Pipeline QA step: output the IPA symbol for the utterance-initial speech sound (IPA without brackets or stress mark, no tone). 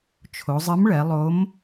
t͡ʃʰ